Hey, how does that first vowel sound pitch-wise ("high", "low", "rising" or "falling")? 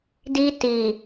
high